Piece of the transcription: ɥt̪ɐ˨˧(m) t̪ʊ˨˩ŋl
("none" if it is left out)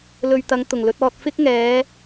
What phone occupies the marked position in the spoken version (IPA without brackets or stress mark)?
ŋ